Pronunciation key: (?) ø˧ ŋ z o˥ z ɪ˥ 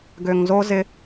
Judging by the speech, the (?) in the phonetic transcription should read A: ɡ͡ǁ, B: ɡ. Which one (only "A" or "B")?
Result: B